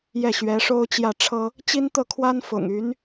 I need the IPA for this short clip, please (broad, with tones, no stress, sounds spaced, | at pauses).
j ɛ˥˩ ɕ ɥ ɛ˧˥ ʂ o˥ ʊ̯ t͡ɕ j ä˥˩ ʈ͡ʂʰ ɤ˥ | t͡ɕ i˥ n t̪ ɤ˥˩ kʰ w a˥ n f ʊ̰˨˩ ŋ y˧˥ n